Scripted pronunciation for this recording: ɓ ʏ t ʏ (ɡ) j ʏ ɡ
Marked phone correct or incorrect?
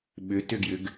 correct